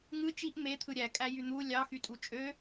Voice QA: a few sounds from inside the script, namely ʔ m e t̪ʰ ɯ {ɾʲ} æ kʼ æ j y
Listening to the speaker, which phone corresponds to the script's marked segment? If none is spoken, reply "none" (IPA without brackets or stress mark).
ɾʲ